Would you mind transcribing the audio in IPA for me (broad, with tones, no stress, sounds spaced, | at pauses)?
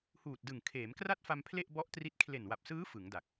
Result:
h uː˨˩ t̚ d ɯ˨˩ ŋ kʰ eː˩˦ m k r a˥˩ t̚ f a˧ m pʰ l e˥˩ ʔ b ɔ˦˥ ʔ t r i˦˥ t̚ kʰ l e˨˩ n w a˨˩ p̚ s ɯː˦˥ f ɯ˩˦ ŋ d a˨˩ k̚